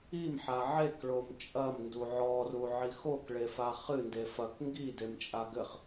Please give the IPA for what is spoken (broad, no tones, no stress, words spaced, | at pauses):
imħa ʕekɭom t͡ʃʼɐmndu ʕɔruʕi xokɭefa χɨnde fɐk ŋɡidemt͡ʃʼa ɡɘχ